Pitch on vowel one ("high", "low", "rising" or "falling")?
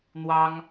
high